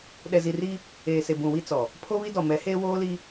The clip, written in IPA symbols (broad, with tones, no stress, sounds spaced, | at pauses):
ɗ ɛ˨ z i˨ r i˦ | eː˨ s e˨ b ũ˨ w i˦ t͡s ɔ˨ | pʰ o˦ β i˦ d ɔ˨ m ɛ˨˦ h eː˦ w oː˦ l i˦